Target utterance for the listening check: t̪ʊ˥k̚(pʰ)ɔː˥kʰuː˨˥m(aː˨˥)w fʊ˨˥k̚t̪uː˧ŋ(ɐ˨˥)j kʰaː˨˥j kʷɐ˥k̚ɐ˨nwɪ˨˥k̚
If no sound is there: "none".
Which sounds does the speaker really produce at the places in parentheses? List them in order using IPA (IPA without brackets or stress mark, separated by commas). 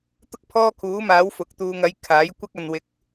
pʰ, aː˨˥, ɐ˨˥